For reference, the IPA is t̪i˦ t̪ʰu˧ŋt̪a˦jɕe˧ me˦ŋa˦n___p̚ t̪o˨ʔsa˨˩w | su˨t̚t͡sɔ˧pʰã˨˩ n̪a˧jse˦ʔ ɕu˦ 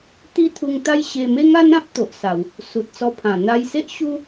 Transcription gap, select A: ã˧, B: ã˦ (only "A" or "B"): B